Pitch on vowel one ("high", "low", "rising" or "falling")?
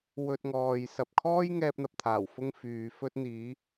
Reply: high